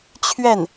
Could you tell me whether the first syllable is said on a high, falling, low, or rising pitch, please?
falling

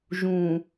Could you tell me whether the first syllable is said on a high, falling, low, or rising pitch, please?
low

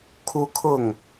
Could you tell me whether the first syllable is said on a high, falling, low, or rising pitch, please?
high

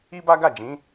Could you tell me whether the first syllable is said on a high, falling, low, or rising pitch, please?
high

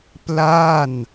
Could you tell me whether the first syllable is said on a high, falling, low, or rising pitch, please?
falling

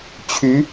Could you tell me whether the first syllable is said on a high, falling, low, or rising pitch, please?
rising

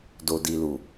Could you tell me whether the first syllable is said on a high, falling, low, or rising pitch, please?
low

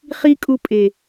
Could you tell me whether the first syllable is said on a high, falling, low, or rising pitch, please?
high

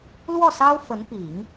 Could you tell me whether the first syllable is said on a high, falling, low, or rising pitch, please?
falling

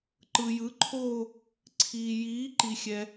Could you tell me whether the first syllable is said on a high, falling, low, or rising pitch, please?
low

